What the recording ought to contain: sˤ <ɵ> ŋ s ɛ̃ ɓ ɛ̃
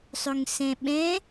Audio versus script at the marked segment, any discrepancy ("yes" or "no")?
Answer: no